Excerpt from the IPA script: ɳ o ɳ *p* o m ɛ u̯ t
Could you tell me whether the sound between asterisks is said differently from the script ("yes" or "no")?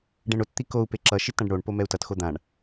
no